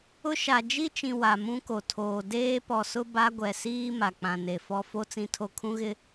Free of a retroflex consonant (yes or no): yes